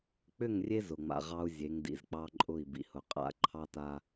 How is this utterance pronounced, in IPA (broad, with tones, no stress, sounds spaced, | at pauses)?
k͡p ʏ˦˨ ŋ rʲ e˦ z ʊ˨ ŋ͡m a̰˨ ʁ ɑ˦ u̯ zʲ e˨˦ ŋ d ḭ˨ z k͡p ɑ˦ ǃʼ ʊ˦˨ i̯ b ḭ˨ h ʊ˨ qʼ a̰˦ ǃʰ ɑ˦ t a˦